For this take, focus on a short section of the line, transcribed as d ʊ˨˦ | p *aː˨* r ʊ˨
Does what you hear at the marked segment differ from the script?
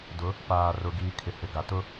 no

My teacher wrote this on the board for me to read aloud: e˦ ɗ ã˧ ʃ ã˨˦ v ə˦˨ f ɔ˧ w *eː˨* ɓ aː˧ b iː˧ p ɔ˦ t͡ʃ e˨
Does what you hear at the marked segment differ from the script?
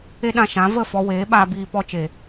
yes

